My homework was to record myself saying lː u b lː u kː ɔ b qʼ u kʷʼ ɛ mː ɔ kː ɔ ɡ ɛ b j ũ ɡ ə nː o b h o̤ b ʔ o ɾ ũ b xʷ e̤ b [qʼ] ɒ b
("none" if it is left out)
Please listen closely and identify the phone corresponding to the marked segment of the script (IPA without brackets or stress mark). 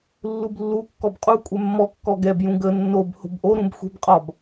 qʼ